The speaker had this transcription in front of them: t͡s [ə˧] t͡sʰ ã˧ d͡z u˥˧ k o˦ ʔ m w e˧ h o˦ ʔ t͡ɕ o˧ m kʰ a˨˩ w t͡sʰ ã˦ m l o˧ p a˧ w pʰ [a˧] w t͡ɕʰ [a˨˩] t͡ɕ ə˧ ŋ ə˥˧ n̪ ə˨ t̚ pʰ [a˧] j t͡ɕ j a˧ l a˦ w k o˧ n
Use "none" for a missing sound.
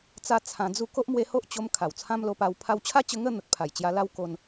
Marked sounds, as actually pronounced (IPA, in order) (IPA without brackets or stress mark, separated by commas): a˧, a˧, a˦, a˨˩